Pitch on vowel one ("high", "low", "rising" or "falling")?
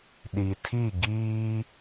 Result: low